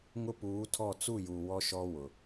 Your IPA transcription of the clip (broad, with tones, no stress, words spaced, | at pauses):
ŋʊ˦puː˨˦tʰɔ˦˨ t͡su˦˨ju˨ wɔ˦ʃɔ˦ wʊ˨